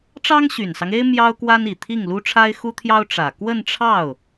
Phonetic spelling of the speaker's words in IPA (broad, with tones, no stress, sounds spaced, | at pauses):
ʈ͡ʂ ɑ˥ ŋ ɕ y˨˩ n s ɑ˦ ŋ e˥ ɪ̯ m j ɑ˥ ʊ̯ k w a˥ n i˨˩ t̪ʰ i˥˩ ŋ l u˥ ʈ͡ʂʰ a˥ ɪ̯ x u˥ t̪ʰ j ɑ˥ ʊ̯ ʈ͡ʂ ä˨˩ k w ə˥˧ n ʈ͡ʂʰ ɑ˥˩ ʊ̯